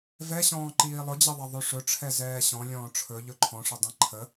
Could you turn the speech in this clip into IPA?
vɛɕɔ̃ː ǃiːlˠʊd͡ʑəðˤɛ ðˤʉʂɵʈ͡ʂʰɛzɛː ɕɔ̃lʲɔ̃ː ʈ͡ʂʰɵ ʎɵǃʰɔ̃ʂədˤĩ ǃʰə

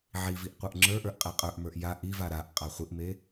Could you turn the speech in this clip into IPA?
ʕiviʔ qʷə˞ʔŋ͡ǁə˞ʔə˞ʔ qʼeqʼə˞ʔmə˞ʔ ja ʔiva ɾaʔ qʼaχʷiʔme

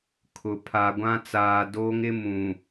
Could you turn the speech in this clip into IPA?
kʰʊ˨ pʰa˨ɡʷã˦t͡saː˨ doː˦ŋɪ˦mũ˨

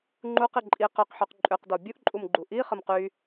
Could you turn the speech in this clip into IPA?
ŋ͡ǃuqi ǃʼiq œqħyq ǃʼøqdɔ bʲuʔǃʼumɡ͡ǃu ʔi χəmqy

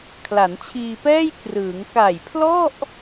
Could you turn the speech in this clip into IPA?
kʰla˩˦nt͡ɕʰiː˧pɛː˥˩j krɯː˩˦ŋ ka˨˩jpʰlɔ˥˩ʔ

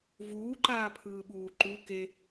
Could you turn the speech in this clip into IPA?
vuːǃaːpʰɯːɓuː ǃu ke

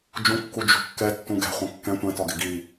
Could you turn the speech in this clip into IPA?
d͡ʒũkːu d͡ʒṳkːɛ tːũɡɛ̤ χʷɐ̃kːɛ̃ tʷɛ̃tɒɡɪ ɡi

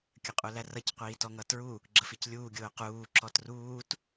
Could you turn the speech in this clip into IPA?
kʲəqʼulærʌc qʷiːtɔŋʌtɹu | ɡ͡ǁəficlʲuː ɡʲʊːquː ǁɔtruːt

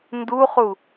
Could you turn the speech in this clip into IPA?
nduχu

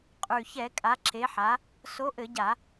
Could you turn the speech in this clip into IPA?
qʼʉ˨˩çɛ˧˩˧ kʼa˨˥ǁe˨˥ħa˨˥ | so˨˥ʔɘ˧˩˧ɟa˧˩˧

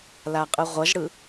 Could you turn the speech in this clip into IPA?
laqʼɯʁʷʌʒɽɯ

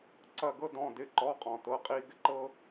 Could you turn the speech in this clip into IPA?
ǀɐ˥˧ɡɤ˥ dɔ̃˧˥˧dɪ˧˥˧ǃɔ˧˥˧qʼɔ̃˨ tɤ˧˥˧qʼi˥ɡɪ˥ ǃɤ˥

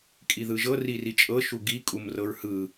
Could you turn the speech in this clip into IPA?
kʼiðɯʒɤ ririt͡ʃʼɤ ʃuɡi kʼumrɤɹhɯ

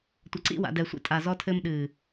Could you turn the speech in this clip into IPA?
tʷɐ˨ǀḭ˦˨wa̰˨ dɛ˨sʷḭ˧ tʼa˨ zɔ˧tʰɘː˧m ɗɨː˨

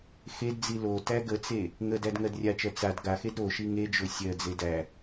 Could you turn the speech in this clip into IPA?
xedd͡zi lo tæɡət͡se | ŋə dædŋɜdrʲat͡ʃɜ t͡sad ɡaxed ɾoʃi ŋed͡ʒo sʲɜd͡ze dæ

